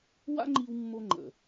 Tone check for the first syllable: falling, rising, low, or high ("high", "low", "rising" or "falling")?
high